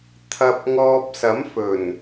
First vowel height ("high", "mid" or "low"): low